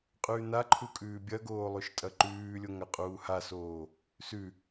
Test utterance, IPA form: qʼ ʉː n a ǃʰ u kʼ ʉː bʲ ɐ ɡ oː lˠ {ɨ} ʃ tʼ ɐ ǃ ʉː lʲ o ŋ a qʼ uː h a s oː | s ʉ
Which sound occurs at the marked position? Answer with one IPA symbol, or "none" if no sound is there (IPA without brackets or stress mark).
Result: ʉ